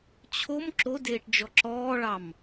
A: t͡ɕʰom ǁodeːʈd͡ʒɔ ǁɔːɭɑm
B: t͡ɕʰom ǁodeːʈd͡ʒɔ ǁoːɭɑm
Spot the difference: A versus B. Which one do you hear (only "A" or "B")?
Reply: A